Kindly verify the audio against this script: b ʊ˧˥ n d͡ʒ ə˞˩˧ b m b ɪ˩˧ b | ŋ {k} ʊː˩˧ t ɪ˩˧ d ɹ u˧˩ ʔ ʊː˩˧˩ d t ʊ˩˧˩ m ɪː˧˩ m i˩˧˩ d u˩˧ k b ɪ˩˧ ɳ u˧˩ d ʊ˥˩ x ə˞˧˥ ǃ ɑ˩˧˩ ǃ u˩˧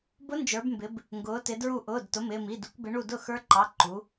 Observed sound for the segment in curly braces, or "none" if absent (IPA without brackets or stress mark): ɡ